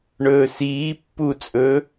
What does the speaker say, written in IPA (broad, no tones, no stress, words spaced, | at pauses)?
ɳɵːsiː pːut͡sʼɵː